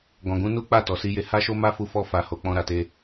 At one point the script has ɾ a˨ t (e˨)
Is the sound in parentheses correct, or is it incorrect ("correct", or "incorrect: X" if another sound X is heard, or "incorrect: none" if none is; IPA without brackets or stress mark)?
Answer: incorrect: e˧